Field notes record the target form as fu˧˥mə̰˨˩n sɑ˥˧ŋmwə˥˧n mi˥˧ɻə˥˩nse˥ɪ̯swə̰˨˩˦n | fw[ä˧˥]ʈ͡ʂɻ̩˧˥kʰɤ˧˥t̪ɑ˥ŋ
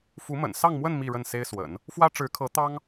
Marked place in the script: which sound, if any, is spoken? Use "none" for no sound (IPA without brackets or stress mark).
ä˥